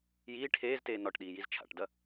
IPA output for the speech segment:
j iː ʈʰ eː z t eː n ɒ ʈ ɗ iː j i z t͡ʃʰ a̰ ʈ d ɐ

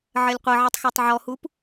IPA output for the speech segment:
ʕ ɜ lʲ qʷ ɤ ʕ i tˤ x ɜ tˤ ʕ ɔ h u p

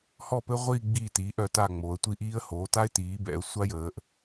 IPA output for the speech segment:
h ɔ˥˨ p ɘ˥ ʁʷ iː˥˨ ɡ͡b iː˥˨ t iː˩˥ ʔ œ˩˧ t a˥˨ ŋ͡m oː˩˧ ə̯ tʷ i˥˨ ʔ iː˥ ə̯ h oː˩˥ t a˥ ɪ̯ t iː˩˥ b ɛ̰˩˥ ə̯ sʷ a˥ j əː˩˧ ʔ

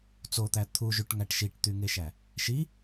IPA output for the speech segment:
t͡s o t̪ æ t̪ʰ u ʒ y ʈ ŋ æ ʈ ʃ i ʈ t̪ y ŋ e ʃ æ | ʃ i

